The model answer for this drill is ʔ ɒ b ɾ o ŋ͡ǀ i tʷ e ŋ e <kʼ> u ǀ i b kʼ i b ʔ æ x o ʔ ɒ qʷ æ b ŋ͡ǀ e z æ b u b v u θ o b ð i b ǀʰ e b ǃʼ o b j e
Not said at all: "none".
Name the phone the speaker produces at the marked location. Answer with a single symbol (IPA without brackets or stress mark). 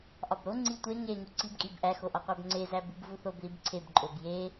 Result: ŋ